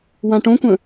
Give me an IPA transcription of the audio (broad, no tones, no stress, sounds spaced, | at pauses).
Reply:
w ã ʈ õ kʷ ə̃